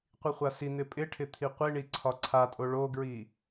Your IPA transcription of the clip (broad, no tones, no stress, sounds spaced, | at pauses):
qʷ i χʷ a s i n̪ ɪ pʼ ɪ ʈʰ ɪ t̪ʰ i qʷ i ɳ i ǀʰ ɒ ǀʰ a tʼ o ɭ o ɡ ɹ i